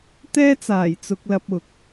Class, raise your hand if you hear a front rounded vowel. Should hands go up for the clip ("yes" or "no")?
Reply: no